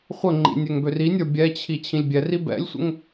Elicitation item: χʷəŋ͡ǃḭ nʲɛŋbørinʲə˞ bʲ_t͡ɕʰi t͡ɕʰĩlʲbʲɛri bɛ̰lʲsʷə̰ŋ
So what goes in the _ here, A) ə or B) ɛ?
B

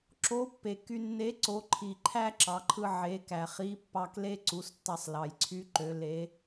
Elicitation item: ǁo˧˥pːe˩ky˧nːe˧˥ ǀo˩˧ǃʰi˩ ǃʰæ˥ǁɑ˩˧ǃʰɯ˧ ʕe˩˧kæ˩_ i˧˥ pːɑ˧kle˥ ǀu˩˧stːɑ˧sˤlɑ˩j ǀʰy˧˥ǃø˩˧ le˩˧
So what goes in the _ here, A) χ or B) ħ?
A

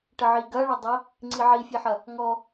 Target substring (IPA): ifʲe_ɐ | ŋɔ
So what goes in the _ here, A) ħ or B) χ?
A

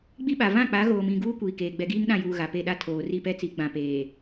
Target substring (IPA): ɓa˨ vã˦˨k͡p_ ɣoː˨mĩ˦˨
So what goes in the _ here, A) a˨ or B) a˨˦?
B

